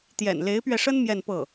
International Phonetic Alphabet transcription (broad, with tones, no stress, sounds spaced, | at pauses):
t̪ j ɛ̰˨˩ n l e˧˥ ɪ̯ p ɥ ɛ˧ ʂ ə˥ n m j ɛ˥˧ n p ɤ˥˩